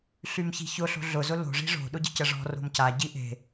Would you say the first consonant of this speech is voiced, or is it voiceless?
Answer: voiceless